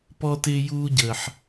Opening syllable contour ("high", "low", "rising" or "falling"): high